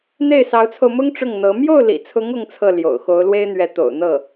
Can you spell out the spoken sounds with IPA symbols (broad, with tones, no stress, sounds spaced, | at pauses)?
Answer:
n̪ e˥˩ ɪ̯ s ɑ˧˥ ʊ̯ t͡sʰ o˧ ʊ̯ m ʊ˥ ŋ ʈ͡ʂ ʊ˥˩ ŋ n̪ ɤ˧˥ m j o˥˩ ʊ̯ l ḭ˨˩ t͡sʰ ʊ˧˥ ŋ ʊ˥ ŋ t͡sʰ ɤ˥˩ l j o̰˨˩ ʊ̯ x o˧˥ ʊ̯ l w e˥ ɪ̯ n̪ ɥ ɛ˧˥ t̪ o̰˨˩ ʊ̯ n̪ ɤ˥˩